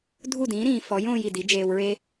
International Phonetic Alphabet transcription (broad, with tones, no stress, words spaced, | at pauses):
dʱu˦˨dĩː˨˦ɾĩː˨ fɔ˨˦j õː˧j i˨di˨˦d͡ʒeː˧wɹe˦